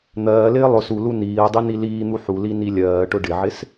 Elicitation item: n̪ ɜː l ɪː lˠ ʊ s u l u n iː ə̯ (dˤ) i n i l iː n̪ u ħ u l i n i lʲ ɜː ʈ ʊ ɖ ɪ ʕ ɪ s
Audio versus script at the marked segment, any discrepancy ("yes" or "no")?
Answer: no